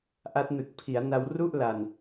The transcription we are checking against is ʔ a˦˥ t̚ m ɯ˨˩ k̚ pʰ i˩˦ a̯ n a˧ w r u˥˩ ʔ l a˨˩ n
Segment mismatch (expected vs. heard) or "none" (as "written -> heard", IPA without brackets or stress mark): m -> n